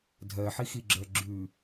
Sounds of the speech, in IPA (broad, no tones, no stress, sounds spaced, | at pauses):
dʱ ɜ ħ i x i ɡ͡ǁ œ ɡ͡ǁ ʉ